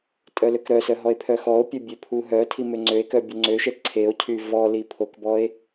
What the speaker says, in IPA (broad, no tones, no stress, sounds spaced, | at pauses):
tʼ œ l ø k ɾ œ s œ ɦ ɔ e̯ pʰ œ x ɔ o̯ pʲ œ bʲ ø pʰ u ɦ œ tʰ i m ø ŋ͡ǀ ø e̯ k œ bʲ o ŋ͡ǀ ø ʃ ɛ ǀʰ e o̯ cʰ y v ɔ l i pʰ o k b ɔ e̯